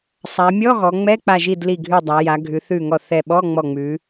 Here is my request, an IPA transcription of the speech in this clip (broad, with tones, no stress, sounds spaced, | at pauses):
sˤ a˩˧ mʲ ɔ˧˥˧ ɣ ɔ˩˧ ŋ͡m ɛ˧˥˧ k͡p a˧˩ ʒ i˧˩ d l i˧˩ ɡʱ ʉ˧˩ dˤ a˩˧ j a˩˧ ɡʱ ʉ˩˧ θ ʉ˧˩ ŋ ɔ˧˩ θ ɛ˧˩ ɓ ɔ˧˥˧ ŋ͡m ɔ˧˩ ŋ͡m ʉ˩˧